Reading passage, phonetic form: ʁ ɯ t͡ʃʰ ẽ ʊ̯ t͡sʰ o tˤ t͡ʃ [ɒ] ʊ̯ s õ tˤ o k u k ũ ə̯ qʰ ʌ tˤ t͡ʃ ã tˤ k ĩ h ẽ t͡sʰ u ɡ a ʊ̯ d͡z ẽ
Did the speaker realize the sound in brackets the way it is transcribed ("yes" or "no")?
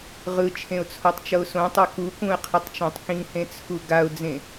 no